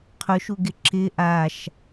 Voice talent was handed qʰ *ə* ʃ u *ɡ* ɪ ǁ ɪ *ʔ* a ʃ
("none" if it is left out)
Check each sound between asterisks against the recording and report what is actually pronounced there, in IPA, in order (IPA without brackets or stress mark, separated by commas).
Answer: ʊ, ɡ, ʔ